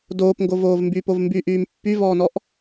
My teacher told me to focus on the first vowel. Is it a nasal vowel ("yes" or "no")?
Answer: no